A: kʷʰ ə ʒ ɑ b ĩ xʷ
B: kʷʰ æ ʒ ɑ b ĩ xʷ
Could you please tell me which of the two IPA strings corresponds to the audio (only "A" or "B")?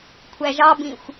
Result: B